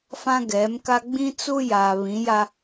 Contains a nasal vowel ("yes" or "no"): yes